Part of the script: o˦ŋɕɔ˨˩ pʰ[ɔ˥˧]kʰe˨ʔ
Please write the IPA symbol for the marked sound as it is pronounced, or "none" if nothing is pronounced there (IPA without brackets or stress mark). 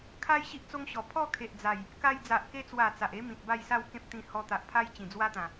ɔ˥˧